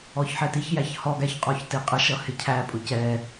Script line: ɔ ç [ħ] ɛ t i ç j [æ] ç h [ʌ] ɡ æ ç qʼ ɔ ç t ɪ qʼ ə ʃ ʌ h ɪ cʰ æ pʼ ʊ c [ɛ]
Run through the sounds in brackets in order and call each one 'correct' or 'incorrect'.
correct, correct, incorrect: ɔ, correct

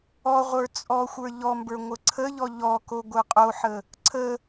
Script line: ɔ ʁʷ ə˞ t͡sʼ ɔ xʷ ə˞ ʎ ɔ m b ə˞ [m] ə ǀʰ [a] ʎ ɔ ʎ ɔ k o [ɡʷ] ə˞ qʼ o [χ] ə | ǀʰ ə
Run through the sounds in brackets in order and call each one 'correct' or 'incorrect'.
incorrect: ŋʷ, incorrect: ə, correct, incorrect: ħ

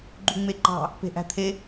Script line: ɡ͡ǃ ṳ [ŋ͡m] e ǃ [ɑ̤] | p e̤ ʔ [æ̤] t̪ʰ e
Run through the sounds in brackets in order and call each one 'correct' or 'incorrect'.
correct, correct, correct

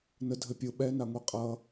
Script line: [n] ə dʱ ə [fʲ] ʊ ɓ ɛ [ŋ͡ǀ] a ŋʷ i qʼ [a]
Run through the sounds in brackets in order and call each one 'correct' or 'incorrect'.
correct, incorrect: pʲ, incorrect: n, incorrect: ʌ

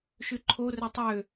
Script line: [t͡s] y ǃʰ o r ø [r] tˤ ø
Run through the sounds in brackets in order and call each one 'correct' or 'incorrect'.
incorrect: ʃ, incorrect: none

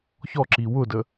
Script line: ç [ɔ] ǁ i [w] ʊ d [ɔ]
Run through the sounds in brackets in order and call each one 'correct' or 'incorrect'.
correct, correct, incorrect: ə

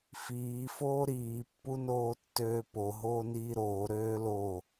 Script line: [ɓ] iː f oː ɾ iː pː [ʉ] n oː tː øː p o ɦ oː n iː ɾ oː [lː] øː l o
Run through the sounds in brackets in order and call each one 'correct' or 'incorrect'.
incorrect: f, incorrect: u, incorrect: ɾ

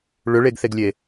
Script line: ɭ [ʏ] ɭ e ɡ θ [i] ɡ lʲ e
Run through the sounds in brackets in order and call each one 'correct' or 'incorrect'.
correct, incorrect: e

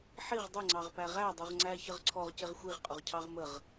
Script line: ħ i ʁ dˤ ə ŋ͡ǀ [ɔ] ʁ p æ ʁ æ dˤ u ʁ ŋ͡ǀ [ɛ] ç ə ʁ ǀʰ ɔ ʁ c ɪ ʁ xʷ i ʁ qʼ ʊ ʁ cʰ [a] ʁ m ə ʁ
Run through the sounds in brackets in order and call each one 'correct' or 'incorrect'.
incorrect: ɑ, incorrect: æ, incorrect: ɑ

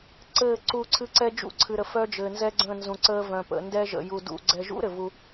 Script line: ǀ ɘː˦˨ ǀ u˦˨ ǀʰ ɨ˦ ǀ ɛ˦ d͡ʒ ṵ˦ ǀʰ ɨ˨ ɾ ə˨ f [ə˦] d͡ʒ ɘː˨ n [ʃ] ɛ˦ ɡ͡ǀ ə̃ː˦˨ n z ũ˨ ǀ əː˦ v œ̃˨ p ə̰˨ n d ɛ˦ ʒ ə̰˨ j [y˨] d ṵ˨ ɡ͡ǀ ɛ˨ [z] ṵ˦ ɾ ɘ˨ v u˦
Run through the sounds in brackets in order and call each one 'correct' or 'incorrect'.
incorrect: œ˦, incorrect: z, incorrect: u˨, incorrect: ʒ

